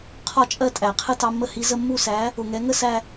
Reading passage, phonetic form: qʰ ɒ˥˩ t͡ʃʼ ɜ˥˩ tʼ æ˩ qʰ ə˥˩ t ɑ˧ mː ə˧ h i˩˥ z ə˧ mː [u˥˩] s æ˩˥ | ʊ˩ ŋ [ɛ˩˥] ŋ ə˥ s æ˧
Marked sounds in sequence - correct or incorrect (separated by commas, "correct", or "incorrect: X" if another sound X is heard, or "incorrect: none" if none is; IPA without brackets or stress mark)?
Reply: correct, correct